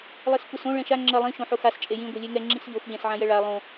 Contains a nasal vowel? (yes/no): yes